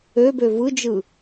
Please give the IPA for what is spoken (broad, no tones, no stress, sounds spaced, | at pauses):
ø b ø v ɯ d͡ʒ ɯ